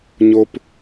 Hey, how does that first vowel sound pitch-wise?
low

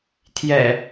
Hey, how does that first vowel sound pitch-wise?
low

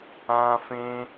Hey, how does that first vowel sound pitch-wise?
high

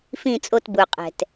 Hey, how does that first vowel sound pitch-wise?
falling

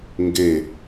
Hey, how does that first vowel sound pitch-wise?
falling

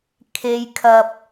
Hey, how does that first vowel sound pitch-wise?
low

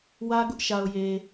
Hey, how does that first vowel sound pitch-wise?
high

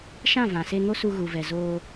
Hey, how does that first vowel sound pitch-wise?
falling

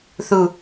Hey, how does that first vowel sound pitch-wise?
falling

